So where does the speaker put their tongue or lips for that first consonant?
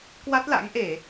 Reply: velum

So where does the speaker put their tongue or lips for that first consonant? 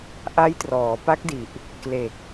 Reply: throat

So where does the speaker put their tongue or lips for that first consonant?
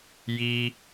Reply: palate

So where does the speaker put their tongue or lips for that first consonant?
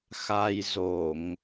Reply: velum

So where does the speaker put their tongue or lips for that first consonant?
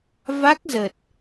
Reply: lips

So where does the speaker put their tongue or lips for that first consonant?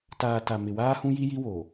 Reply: tongue tip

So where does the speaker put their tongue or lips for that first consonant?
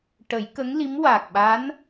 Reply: retroflex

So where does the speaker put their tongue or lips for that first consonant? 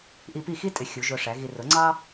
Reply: throat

